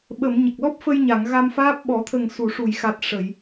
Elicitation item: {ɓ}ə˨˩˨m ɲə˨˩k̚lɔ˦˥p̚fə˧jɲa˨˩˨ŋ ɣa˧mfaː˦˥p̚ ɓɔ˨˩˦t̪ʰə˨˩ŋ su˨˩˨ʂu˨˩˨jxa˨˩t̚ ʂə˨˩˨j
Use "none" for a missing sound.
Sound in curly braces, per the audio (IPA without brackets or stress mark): ɓ